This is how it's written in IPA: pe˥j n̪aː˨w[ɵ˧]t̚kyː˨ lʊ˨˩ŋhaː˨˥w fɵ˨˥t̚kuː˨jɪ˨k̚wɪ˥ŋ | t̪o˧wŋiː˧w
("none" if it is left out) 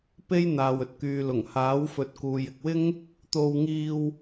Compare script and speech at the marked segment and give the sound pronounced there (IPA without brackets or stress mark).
ɵ˨˥